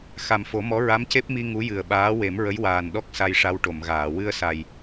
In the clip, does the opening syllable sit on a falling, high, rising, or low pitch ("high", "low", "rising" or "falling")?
low